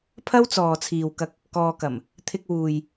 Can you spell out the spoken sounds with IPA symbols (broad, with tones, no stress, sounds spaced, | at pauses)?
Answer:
pʰ ɐ˥ w t͡s ɔː˨ t͡sʰ iː˨ w k ɐ˧ k̚ | k ɔː˧ k ɐ˨˩ m | t̪ʰ ɪ˧ k̚ w uː˨ j